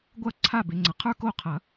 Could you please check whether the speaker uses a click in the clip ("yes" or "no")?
yes